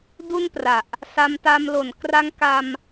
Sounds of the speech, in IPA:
d u˥˩ n p r a˨˩ ʔ | s a˧ m t a˧ m l o˩˦ n k r a˧ ŋ k a˧ m

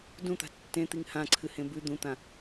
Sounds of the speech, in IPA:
d ũ t̪ a̤ tː ẽ t̪ i ŋ h ã ǀʰ ɨ h ẽ b ʉ d̪ ũ t̪ ã

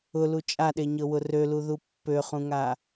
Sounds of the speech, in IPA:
ʊ l u t͡ʃʼ a ɗ e ɲ ɤ w ʊ r ø l u ð u pː ø χ ũ ŋ a

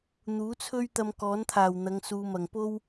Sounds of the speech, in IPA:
n̪ uː˨˥ t͡sʰ ɵ˥ ɥ t̪ ɐ˧ m k ɔː˨˥ n t̪ʰ aː˨˩ w n̪ ɐ˨˧ ŋ s uː˨ m ɐ˨˩ ŋ p o˥ w

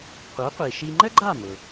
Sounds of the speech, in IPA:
qʷ œ˩˥ qʷ i˩ ʃ i˧ ŋ͡ǃ ə˥ ɡ͡ǃ a˥˩ m ʊ˩

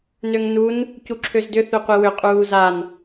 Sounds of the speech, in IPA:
n ø ŋ n u n | c u ǁʰ ø z d ʏ θ ø qʷ i w ʏ qʼ uː z a n

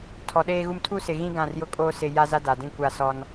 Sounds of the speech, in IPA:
tʰ ɔ˨ ɗ eː˦ ɣ u˦ m tʰ u˦ s ɪ˨ ɣ ĩ˦ ɡ ã˦˨ r j ʊ˦ kʼ oː˦ s ɪ˦ j a˦ z a˦ d a˨ d ĩ˦ kʷ a˦˨ s ɔ˦ n

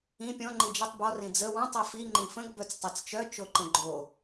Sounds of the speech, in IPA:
ĩ pʲ ɔ̃ ŋ͡ǃ i d͡ʒ ə tˤ b ɔ r ĩ d͡z ə w ɔ̃ tˤ i f i ŋ͡ǃ ĩ f ə̃ ɡ b œ t͡s tˤ e t͡s t͡ʃ œ t͡ʃ o ǃ ə̃ ɡ͡ǃ o

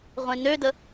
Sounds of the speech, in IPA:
ʁʷ ẽ n ø d ə

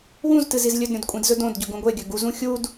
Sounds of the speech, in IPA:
w ũ z t ɨ z i z lʲ ɵ d ɾʲ õ d kʷʼ ĩ d z ɵ d õ d ɟ ɵ ɡ ũ ɡʷ e ɡʲ ɵ ɡ u z ũ xʲ u d

